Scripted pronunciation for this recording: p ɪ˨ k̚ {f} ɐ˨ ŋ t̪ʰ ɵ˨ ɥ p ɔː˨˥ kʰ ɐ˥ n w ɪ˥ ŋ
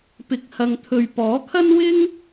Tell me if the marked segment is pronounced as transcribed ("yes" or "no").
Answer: no